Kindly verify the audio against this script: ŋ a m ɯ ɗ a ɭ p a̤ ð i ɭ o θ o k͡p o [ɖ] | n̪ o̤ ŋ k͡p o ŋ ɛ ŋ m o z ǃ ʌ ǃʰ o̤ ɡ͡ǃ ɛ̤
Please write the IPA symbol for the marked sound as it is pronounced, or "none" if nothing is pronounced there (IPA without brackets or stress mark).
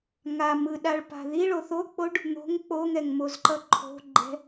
ɖ